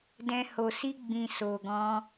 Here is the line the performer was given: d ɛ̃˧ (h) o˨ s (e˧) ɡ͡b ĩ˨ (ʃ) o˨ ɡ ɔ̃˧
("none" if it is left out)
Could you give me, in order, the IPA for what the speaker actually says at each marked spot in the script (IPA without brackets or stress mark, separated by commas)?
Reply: h, i˧, s